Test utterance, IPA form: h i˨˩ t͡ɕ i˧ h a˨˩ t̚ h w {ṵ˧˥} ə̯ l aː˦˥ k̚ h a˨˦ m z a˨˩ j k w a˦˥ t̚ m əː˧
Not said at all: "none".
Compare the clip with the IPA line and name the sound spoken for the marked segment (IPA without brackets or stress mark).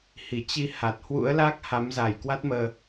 ṵ˧˥